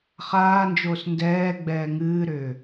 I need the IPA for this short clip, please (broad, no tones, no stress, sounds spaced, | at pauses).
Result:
χ aː n d͡ʒ oː s n d ɛː ɡ͡b ɛː ŋ ɨː ɾ ʏː